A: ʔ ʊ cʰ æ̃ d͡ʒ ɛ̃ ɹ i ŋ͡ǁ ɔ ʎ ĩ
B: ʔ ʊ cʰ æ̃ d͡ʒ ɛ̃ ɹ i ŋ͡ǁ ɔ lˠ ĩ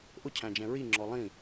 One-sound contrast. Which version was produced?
B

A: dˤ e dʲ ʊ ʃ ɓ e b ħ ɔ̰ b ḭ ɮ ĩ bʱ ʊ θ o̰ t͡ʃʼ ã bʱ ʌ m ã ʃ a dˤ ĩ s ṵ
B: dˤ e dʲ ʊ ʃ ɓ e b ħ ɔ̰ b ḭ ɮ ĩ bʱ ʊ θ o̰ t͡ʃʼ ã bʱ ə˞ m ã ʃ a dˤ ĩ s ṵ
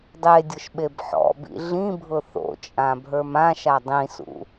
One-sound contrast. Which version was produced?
B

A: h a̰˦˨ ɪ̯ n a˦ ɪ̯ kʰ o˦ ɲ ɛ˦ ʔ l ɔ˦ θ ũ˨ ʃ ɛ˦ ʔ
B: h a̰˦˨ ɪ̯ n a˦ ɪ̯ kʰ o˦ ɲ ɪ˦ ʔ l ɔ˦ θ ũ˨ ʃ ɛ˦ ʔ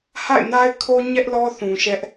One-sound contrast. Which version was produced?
A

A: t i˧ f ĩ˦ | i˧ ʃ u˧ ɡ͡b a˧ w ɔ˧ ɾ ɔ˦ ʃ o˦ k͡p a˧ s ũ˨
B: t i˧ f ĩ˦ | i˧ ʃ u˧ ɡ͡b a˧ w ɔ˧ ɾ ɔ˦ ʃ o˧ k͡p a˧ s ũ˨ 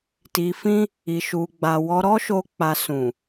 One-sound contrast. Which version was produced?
B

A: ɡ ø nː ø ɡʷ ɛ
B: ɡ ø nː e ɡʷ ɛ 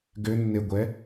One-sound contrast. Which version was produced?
B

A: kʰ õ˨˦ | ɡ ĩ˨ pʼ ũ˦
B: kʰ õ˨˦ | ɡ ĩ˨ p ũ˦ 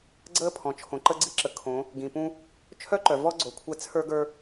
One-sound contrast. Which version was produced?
B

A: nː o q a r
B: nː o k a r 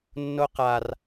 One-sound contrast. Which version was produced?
A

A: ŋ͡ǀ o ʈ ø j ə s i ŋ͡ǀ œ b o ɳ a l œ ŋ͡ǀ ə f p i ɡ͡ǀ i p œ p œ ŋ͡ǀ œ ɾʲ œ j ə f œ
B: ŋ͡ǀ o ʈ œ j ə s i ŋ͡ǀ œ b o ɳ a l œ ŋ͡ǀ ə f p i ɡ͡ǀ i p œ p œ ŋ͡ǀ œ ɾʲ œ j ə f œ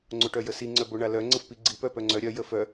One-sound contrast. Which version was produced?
B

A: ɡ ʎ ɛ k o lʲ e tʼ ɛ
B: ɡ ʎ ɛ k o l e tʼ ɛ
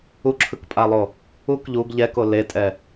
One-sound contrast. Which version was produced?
B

